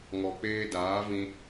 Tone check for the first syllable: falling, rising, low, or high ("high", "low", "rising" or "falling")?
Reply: low